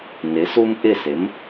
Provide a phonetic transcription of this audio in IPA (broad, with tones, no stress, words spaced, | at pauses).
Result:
nɪ˩˧su˦m ʔɪ˥˨sɪ˩˥m